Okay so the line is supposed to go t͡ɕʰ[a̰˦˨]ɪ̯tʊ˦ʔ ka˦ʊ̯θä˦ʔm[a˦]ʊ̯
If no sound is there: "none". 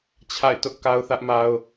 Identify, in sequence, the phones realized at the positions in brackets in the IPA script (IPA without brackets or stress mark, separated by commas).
a̰˦˨, a˦